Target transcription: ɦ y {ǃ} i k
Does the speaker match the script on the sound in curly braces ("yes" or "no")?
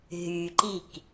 yes